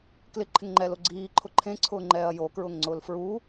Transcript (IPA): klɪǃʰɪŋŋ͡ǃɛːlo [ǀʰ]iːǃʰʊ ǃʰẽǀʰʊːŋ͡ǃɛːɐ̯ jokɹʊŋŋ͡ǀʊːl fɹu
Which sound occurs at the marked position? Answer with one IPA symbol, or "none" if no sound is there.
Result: ɡ͡ǀ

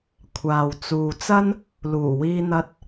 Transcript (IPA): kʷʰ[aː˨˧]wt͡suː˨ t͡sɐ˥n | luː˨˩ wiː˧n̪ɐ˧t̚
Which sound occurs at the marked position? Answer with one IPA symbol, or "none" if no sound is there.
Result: aː˨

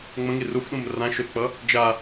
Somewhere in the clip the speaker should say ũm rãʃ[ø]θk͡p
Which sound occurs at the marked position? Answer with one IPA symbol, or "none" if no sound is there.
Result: ø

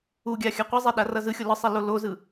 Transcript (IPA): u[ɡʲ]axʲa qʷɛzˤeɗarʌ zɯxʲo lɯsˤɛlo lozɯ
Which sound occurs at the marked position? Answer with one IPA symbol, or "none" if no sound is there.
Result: ɡʲ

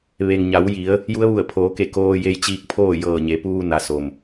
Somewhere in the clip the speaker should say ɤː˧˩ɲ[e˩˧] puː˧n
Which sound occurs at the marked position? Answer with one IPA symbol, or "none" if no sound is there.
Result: e˩˧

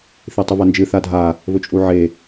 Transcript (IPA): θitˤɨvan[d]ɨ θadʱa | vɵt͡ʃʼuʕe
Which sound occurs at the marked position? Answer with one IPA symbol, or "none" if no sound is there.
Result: d͡ʒ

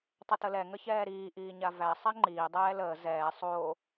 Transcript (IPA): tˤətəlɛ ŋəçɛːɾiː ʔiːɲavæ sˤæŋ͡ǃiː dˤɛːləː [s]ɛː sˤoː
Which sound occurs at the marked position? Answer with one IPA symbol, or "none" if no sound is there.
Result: z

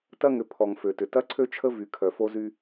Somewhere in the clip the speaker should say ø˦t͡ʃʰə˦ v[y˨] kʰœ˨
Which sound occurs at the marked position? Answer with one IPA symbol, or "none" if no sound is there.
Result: y˨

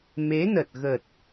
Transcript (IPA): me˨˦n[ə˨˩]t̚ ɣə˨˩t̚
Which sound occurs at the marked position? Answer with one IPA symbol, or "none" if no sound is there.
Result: ə˨˩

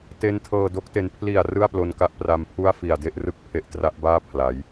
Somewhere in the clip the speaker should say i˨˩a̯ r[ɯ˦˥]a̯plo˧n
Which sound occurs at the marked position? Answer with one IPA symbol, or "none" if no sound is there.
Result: ɯ˥˩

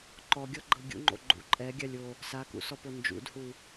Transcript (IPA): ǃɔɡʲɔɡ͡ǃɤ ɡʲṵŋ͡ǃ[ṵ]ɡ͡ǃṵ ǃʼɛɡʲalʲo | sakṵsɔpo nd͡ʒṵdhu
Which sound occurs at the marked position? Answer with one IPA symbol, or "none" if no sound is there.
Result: o̰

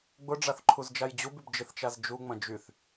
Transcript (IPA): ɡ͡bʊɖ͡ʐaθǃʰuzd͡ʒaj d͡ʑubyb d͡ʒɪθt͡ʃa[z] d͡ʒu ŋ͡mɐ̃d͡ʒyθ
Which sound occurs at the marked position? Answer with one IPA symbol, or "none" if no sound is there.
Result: z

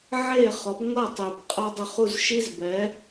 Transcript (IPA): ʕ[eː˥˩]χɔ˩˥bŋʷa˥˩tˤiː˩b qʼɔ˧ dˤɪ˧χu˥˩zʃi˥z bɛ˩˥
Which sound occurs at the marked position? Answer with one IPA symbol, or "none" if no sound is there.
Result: eː˥˩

